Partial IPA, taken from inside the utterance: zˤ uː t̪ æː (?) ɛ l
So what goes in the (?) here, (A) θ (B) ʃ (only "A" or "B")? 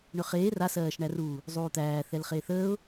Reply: A